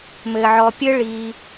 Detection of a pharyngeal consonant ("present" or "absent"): present